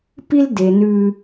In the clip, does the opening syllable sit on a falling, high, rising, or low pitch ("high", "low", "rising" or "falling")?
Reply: high